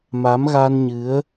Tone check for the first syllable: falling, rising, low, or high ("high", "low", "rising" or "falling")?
rising